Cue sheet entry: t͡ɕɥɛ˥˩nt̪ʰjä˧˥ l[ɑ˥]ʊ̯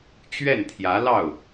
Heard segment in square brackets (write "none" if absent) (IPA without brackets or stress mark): ɑ˥˩